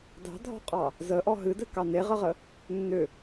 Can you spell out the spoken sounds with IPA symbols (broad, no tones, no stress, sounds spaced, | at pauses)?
d ɑ̤ dʱ ɔ̤ qʼ ɑ | z ə ʔ ɔ ɦ ɨ d ɘ k ɑ n e ʁ ə ʁ ə | nː ʏ